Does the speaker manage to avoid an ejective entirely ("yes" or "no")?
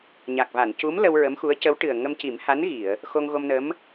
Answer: yes